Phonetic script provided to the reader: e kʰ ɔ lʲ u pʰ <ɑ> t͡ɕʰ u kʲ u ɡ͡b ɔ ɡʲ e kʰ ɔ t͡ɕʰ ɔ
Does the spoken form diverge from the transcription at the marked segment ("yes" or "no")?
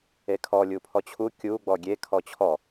yes